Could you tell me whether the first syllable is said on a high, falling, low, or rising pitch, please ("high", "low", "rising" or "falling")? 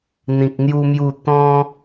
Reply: low